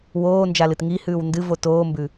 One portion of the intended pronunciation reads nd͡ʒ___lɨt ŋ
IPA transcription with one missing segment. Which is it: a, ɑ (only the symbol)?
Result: a